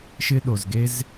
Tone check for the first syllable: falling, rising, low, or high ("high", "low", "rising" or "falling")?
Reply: high